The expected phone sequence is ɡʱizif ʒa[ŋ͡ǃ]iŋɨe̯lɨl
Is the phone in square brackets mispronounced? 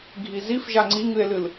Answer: yes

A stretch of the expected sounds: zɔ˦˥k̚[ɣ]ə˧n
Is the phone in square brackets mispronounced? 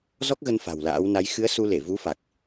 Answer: no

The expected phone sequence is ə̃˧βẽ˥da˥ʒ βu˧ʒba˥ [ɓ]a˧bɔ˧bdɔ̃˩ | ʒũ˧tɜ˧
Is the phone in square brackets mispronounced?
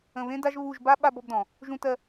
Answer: no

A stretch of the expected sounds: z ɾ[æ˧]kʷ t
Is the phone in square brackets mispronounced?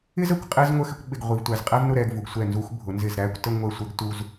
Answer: yes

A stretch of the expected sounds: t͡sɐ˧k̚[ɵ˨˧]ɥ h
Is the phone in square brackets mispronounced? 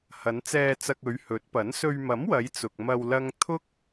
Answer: no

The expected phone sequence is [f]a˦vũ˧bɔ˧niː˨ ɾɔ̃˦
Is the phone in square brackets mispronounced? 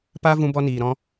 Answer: yes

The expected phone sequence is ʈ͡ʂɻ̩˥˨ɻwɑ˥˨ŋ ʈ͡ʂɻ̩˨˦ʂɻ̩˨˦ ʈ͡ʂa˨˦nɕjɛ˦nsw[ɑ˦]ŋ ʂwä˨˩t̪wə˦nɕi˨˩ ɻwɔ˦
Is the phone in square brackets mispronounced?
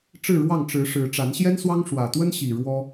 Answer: no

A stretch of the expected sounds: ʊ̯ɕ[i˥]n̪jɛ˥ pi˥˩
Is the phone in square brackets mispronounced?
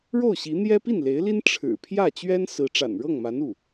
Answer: yes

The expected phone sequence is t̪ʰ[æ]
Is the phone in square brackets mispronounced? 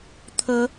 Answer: yes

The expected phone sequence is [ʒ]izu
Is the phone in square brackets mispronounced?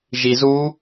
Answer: no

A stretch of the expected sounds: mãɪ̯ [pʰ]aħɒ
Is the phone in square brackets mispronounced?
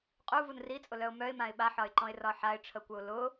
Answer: yes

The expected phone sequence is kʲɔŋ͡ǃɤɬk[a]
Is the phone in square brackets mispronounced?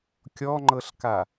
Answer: no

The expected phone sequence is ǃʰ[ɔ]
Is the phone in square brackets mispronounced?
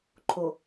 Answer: yes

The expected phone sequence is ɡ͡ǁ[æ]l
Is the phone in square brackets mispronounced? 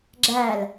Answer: no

